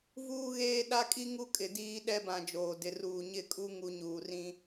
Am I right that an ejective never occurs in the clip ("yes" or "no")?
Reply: no